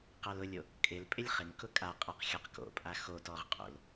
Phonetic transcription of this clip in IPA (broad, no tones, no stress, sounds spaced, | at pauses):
q a l ʊ lʲ o | kʼ ɪ l pʼ ɪ lʲ χ ɪ ŋ k ʊ kʼ a qʼ a q xʲ ɔ q k o̰ pʼ a x o t ɔ ʁ qʼ o̰ l